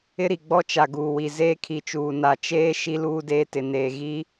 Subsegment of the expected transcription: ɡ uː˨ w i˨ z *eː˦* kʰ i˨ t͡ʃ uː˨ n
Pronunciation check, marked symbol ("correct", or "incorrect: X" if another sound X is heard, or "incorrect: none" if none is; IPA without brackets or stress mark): correct